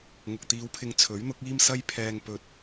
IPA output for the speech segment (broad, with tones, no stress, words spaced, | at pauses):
ŋʊ˨k̚t̪iː˨˧wpʰɪ˨˧ŋ t͡sʰɵ˨˥ɥn̪ʊ˨˥k̚ iː˥msɐ˥jpʰɛː˧ŋ pɵ˧t̚